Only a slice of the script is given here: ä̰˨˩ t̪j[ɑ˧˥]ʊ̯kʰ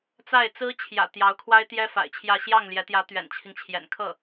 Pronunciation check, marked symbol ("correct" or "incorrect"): correct